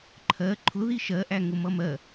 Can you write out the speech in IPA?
ǃʰ ɜ ǃʰ ʊ ð i ʃ ɜ ʔ æ ŋ ʊ m ʌ m ɜ

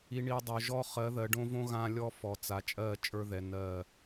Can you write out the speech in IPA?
i˨ ɳ i˨ dˤ o˨ ʒ ɔ˦ χ ɜ˨˦ ð ɜ˨ ɖ õ˦ v õ˦ ɣ ã˦ lʲ ɔ˦ f ɔ˨ t͡s a˨ t͡ʃʼ ɜ˦˨ t͡ʃʼ ə˞˦ ð ɛ˨ n ɜ˦˨

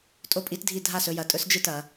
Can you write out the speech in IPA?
tʼ o˥˨ pʼ i˦˥ t dʱ i˥˨ dʱ a˥˨ s ɵ˨˦ j ɐ˨˦ tʼ ɵ˦˥ s d͡ʒ ɨ˥˨ t ɐ˨˦

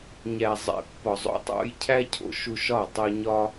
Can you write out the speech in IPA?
ɲ æ˨ zˤ ḛ˨ pː ɒ˨ zˤ o̰˧ tˤ o̰˧ j cʰ æ˦ cʰ o̰˨˦ ʃ u˧ ʃ ɒ˦˨ tˤ u˧ ɲ ɒ˦

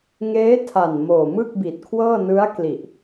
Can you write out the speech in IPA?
ŋ eː˦˥ tʰ a˨˩ n m oː˨˩ m ɯ˥˩ k̚ b i˨˩ t̚ kʰ w ɤː˥˩ n ɯ˦˥ a̯ k l i˨˩ ʔ

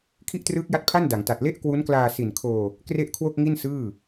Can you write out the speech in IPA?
kʰ i˥˩ ʔ t r ɯː˦˥ k̚ j a˦˥ t̚ pʰ a˥˩ n d a˩˦ ŋ t a˨˩ t̚ l e˥˩ ʔ k w u˦˥ n k l aː˧ s i˨˩ n kʰ oː˧ | k r e˥˩ ʔ kʰ w o˥˩ k̚ ŋ i˥˩ n s ɯː˥˩

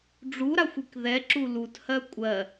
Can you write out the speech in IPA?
ɖ͡ʐ u ɾ a xʷ i k ð ɛ ǁ u l u t h ɜ kʷʼ ɜ

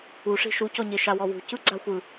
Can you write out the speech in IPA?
u ʂ i̤ ʃ u c ɔ ɲ e ʃ a w ɔ w ṳ c ɯ ɡ͡ǀ a xʷ ɯ

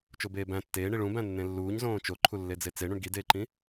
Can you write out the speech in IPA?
t͡ʃ o b eː b æ̃ tː eː ɳ i ɭ ũ b æ̃ nː ẽ lː uː ɲ z õː t͡ʃ o ǃʰ u lː e d͡z e t͡s e ɳ ũ ɳ ɡ i d eː ǃ ĩ

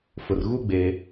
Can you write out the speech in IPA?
f ʊ˨ r ɣ u˦ ɡ͡b eː˦

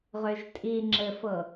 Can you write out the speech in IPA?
ʁ ø ʒ tʼ i ŋ͡ǁ ɘ f ɤ

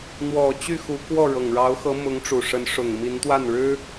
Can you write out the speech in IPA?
n̪ w ɔ˨˩ t͡ɕ y˥˩ x u˧˥ k w ɔ˥˩ ɻ ɤ˨˩ ŋ ɻ ɑ˧˥ ʊ̯ x ɤ˧˥ m ʊ˧˥ ŋ ʈ͡ʂ u˨˩ ʂ ə˧˥ n ʂ ʊ˨˩ ŋ m i˧˥ n t̪ w a˥˩ n ɻ ɻ̩˥

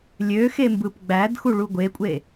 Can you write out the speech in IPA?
lʲ ø x e m b ɯ p ɡ͡b æ d x u ɭ u ɡʷ e kʷʼ e

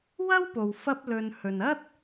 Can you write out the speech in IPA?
w ɐ˥ w p o˨ w f ɐ˥ p̚ l ɵ˧ n h ɵ˨ n ɐ˥ t̚

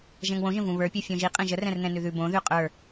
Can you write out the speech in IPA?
ʒ ɛ̃ ŋ w õ ʒ ə̃ v ũ β ə˞ pʲ u fʲ õ ʒ i qʼ ɛ̃ ʒ ə r ɛ̃ r n̪ ɛ̃ n ʉ ð ʉ b õ ð ʉ qʼ ə˞

